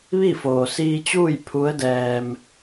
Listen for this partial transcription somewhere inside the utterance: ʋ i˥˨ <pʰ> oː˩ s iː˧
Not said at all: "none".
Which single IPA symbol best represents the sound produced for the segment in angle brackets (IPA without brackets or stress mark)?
f